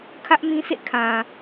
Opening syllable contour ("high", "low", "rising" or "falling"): high